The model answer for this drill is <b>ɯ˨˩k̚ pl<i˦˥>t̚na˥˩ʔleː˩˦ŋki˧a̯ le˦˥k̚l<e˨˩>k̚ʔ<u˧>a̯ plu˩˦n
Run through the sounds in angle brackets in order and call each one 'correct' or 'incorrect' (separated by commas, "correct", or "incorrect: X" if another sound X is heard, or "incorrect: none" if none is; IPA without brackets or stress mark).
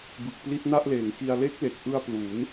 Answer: correct, correct, correct, incorrect: ɯ˧